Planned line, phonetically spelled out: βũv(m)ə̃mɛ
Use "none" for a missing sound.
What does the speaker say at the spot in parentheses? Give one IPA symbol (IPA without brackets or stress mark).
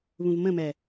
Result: m